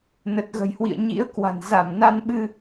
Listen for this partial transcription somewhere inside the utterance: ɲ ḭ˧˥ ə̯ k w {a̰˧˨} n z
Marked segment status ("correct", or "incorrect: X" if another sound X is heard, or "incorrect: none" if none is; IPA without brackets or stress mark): incorrect: a̤˨˩